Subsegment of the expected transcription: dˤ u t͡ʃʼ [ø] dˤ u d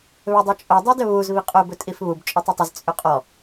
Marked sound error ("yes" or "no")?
yes